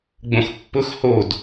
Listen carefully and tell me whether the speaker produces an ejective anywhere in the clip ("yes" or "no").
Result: no